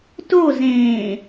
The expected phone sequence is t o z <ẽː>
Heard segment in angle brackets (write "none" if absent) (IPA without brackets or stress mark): ẽː